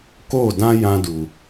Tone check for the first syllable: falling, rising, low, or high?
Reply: falling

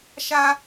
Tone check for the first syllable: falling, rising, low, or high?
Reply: high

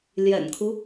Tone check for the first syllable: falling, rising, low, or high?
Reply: low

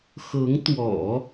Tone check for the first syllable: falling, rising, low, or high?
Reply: rising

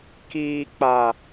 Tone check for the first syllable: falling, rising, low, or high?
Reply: low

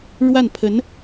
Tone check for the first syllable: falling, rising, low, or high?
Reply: falling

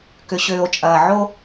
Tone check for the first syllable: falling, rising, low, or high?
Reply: low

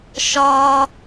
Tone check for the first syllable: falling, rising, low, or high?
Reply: high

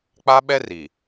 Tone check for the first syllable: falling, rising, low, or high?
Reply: high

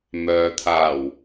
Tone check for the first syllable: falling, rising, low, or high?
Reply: low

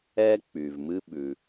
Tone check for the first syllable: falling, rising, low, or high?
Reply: high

